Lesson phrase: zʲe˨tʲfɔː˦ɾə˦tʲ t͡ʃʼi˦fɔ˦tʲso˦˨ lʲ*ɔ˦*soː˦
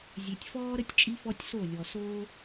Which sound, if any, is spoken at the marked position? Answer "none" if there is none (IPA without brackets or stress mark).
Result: ɔ˨